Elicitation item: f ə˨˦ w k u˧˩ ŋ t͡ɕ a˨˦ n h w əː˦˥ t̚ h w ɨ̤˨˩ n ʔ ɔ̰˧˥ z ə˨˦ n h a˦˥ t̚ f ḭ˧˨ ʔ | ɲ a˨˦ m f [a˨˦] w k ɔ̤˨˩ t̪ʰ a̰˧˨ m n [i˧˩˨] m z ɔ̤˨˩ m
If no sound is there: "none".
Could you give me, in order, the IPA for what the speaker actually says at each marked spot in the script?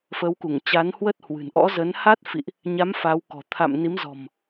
a˨˦, i˨˦

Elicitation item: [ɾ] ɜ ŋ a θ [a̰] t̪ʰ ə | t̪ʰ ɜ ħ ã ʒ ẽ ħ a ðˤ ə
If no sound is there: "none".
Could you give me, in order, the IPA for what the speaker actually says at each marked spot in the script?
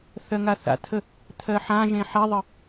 θ, a̰

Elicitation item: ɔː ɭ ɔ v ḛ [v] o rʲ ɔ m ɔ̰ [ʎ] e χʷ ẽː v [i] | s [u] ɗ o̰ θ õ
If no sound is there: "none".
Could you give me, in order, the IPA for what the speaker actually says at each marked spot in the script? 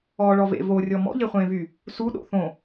v, ʎ, y, u

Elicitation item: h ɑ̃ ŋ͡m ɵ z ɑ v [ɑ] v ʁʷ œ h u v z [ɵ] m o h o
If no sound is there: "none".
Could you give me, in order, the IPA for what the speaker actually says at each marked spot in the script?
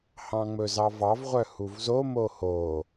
ɑ, o

